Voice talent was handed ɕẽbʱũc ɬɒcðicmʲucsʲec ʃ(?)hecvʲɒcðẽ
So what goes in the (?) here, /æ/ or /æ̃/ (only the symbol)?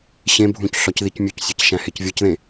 æ̃